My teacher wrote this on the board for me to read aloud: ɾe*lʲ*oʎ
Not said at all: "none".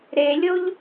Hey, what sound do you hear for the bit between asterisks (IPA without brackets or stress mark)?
lʲ